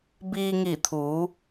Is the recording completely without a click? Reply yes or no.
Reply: yes